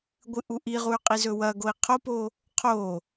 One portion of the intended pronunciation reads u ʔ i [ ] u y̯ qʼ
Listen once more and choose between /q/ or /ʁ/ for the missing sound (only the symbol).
ʁ